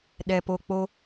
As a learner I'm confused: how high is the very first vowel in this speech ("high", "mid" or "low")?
mid